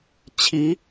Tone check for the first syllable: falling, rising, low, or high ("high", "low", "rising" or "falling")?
rising